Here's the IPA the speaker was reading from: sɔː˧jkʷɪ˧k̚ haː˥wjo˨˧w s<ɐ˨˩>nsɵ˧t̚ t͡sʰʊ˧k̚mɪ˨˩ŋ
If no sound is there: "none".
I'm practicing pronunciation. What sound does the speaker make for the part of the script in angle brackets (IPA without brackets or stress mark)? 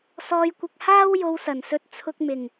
ɐ˨˩